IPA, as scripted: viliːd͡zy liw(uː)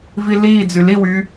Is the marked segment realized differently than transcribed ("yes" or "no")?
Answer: yes